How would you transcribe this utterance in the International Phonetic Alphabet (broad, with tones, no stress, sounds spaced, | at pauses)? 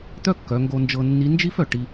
t̪ œ˥ kː œ˩˧ ŋ ɡ o˧ n d͡ʒ ɤ˧ nː i˧˥ n d͡ʒ i˥ f œ˩ ʈ i˧